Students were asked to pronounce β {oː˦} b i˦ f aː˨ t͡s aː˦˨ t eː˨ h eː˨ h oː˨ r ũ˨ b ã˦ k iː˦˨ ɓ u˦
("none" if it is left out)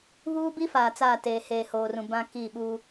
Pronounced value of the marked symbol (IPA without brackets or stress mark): uː˦